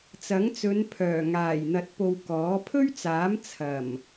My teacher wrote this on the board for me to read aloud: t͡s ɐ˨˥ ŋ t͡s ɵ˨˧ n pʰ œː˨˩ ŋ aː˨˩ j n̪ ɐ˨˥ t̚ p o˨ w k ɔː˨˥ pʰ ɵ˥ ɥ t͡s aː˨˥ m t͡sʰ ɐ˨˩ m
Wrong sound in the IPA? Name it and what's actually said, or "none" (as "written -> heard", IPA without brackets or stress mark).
none